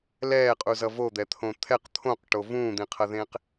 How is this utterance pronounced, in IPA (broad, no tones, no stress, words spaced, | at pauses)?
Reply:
lɛːqʼuzʌ vod̪ɛt̪ʰõ t̪ʰɛq t̪ʰõqʈo vũːd̪ĩqʰʌðẽːq